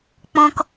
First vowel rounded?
yes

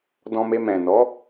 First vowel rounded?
yes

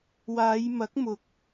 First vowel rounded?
no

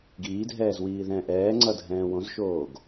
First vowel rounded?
no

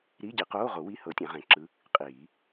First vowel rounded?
no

